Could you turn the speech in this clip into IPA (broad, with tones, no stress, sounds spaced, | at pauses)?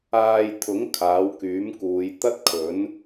aː˧ j t̪ʰ ʊ˨˥ ŋ kʰ aː˨˥ w k yː˨˥ m k uː˨˧ j t̪ ɐ˥ t̚ kʰ ɵ˨˥ n